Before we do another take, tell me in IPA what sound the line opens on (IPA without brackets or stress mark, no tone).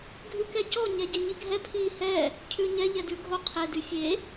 ɡʱ